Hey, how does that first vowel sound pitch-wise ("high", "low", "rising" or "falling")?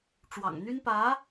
low